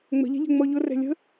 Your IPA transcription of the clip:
ŋ͡m ə̤ ʎ ɛ̤ ʎ ɛ̤ ŋ͡m ɔ ʎ ʊ r ɛ̤ lʲ ə̤

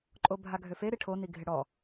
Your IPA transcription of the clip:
ǃʼ o bʱ a ɡʱ ø f e ɾ i ʈʰ o n i ɡʱ ɪ ɽ ɔ

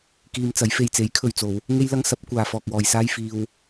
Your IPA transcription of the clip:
k iː˧ m t͡s ɐ˨˥ j f e˨ j t͡s e˨˥ j kʰ ɵ˨ ɥ t͡s o˨˧ w | ŋ e˥ j l ɐ˥ ŋ s ɐ˨˥ p̚ kʷ aː˨ f ɔː˨ k̚ w ɔː˨ j s aː˥ j f iː˧ w

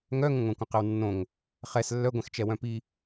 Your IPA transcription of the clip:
ŋ œ ŋ ə̃ ŋʷ ɛ̃ kʷ ə̃ q ə w nː õ ŋ | χ ɛ s lː œ ɡʷ ɛ̃ x t͡ʃ ɛ w œ̃ p i

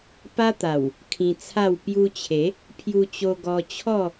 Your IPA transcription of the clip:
p a˦ t̪ a˨˩ w | kʰ ĩ˧ t͡sʰ a˥˧ w p j u˧ t͡ɕʰ e˨˦ | pʰ j u˧ t͡ɕ o˧ ɡ ɔ˧ t͡ɕʰ ɔ˥˧

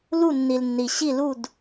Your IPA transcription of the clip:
l u˦˨ nː i˨ l nː i˨ ɕ i˦˨ l u˦˨ d

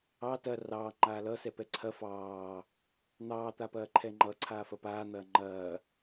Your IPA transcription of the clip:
ɑ t ɐ r ɑː ŋ͡ǃ aː l ʌ s ɛ p ɛ ǀʰ ɐ f ɑː | n̪ ɑː t̪ a p ɐː ǃʰ ɛ ŋ͡ǃ ʌ ǀʰ aː f ɐ p aː n̪ ɐː ŋ͡ǃ ɐː

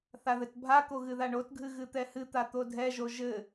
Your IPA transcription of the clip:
θ a ð ɘ t bʱ a k o ɣ ɨ ð a ɳ o t ɡʱ ɨ ɣ ɨ t̪ ɛ h ɨ t̪ a t̪ o dʱ ɛ ʒ o ʒ ɘ

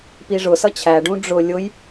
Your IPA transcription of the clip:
p i ʐ ʊ s ʌ t͡ɕʰ æ ɖ ũ ɖ͡ʐ ʊ lʲ ʊ j

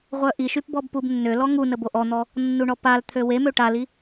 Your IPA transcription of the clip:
ʁʷ œ ʔ i ʃ y p b ɔ b p u b nː ø l ɔ ŋ u n ə b o ʔ ɔ n̪ ɔ | nː u ɳ ɔ p a l t̪ʰ ø w e m ø ʈ a l i

